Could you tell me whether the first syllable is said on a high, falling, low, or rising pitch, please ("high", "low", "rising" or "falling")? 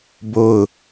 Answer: falling